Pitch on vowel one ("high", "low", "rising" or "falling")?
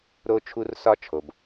high